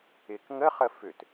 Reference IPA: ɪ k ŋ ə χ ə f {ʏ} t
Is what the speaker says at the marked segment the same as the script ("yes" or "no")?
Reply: yes